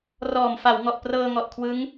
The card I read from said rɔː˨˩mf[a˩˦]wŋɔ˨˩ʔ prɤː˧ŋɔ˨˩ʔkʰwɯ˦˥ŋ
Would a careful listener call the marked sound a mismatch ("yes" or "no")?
no